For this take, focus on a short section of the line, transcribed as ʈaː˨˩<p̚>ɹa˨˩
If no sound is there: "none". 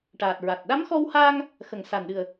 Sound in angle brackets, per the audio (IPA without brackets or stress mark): t̚